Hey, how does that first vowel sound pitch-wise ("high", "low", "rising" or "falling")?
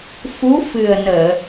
rising